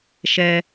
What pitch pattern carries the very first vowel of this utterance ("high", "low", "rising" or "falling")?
high